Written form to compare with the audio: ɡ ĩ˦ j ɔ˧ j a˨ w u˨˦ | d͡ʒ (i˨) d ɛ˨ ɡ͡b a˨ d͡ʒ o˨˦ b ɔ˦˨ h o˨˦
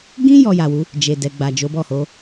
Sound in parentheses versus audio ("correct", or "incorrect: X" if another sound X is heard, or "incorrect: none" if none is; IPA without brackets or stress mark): incorrect: e˨